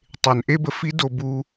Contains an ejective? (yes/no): no